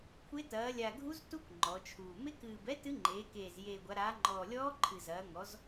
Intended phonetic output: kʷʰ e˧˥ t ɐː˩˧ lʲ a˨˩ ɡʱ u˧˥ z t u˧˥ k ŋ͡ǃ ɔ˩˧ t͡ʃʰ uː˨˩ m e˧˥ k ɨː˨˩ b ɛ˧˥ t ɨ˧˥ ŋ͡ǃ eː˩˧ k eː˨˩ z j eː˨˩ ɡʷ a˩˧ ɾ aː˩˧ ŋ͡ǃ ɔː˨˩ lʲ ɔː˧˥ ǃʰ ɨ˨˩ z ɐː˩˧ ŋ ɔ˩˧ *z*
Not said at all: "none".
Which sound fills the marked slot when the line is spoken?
z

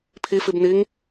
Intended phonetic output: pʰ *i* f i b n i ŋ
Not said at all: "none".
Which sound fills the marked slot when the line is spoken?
i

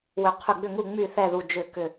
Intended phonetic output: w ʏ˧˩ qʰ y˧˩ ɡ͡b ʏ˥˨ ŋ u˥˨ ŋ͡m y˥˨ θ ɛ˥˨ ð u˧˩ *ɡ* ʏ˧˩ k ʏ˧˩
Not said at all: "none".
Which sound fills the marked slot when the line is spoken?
d͡ʒ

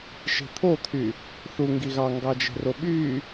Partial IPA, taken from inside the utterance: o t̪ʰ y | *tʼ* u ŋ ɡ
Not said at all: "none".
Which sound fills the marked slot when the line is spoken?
θ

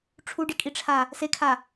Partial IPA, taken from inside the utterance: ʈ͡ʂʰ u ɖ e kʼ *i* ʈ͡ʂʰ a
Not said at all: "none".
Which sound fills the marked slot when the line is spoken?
i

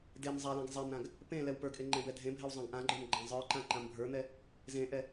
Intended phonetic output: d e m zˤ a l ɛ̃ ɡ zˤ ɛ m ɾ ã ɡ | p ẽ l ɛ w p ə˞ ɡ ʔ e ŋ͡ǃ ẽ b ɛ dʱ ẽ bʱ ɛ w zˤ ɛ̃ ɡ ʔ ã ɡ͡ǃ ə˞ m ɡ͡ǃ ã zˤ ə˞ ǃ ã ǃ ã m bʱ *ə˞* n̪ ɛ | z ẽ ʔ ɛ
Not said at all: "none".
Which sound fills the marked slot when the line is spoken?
ə˞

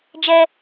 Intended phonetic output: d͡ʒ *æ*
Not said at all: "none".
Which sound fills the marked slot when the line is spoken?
ɛ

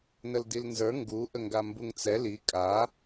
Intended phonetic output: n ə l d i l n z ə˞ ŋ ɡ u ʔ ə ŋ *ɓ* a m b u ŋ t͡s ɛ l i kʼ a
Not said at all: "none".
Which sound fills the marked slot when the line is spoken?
ɡ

